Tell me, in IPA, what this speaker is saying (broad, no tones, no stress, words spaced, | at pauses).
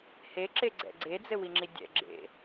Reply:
heǁeɡ͡ǀɛ̰ ɡ͡ǀed͡zɘwiŋ͡ǁi dʲɛ̰ɡ͡ǁḛ